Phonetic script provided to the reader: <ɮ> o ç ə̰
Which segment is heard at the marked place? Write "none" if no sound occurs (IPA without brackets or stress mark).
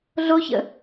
ɮ